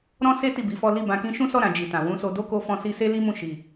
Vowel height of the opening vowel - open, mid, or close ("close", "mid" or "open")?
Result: mid